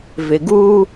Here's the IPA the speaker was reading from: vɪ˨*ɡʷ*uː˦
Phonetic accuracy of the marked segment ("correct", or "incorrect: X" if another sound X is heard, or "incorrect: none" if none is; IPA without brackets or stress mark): incorrect: ɡ